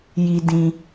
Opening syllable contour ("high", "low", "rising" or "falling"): high